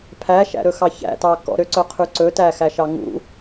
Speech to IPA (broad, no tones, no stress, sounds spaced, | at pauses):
pʰ æ ʃ æ̰ ɾ ɵ x ɑ ç æ̰ t ɑ k ɔ̰ ɾ ø ǀ œ qʰ ʉ ǀ ɵ t æ x æ ʃ ɑ ŋ ṵ